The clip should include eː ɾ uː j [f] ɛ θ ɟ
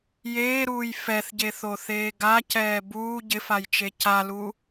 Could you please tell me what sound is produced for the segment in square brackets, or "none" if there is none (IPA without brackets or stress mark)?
f